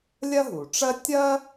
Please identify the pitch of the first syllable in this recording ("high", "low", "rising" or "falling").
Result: high